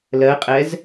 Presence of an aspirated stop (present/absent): absent